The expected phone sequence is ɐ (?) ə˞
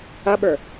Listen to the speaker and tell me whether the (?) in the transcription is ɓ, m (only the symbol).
ɓ